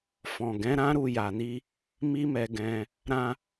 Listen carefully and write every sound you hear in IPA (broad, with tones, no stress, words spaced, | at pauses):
fɔ̃˨ɡɛ̃˨˦ɾã˦ɾu˧ ja˨ni˧ | mi˦mɛ˧ɡɛ̃˧ | ɾã˧